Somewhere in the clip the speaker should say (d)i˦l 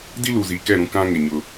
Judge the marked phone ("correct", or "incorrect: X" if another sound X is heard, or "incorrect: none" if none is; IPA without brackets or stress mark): correct